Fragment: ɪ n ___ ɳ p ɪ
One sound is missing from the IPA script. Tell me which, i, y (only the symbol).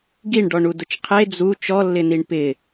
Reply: i